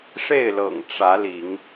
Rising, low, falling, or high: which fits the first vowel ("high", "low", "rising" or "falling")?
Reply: falling